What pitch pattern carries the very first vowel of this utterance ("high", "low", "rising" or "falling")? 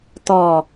low